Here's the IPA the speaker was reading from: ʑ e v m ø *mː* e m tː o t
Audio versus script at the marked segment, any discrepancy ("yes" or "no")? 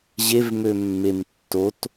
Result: no